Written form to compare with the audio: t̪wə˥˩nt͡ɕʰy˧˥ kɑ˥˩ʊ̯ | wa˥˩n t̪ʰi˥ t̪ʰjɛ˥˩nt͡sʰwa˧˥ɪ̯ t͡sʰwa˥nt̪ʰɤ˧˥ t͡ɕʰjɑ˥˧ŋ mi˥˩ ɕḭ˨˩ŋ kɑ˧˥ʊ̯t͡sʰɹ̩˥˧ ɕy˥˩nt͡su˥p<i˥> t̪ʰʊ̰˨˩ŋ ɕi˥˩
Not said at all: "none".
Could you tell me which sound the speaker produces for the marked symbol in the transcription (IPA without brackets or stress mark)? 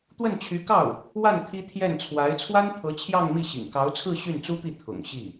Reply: i˥˩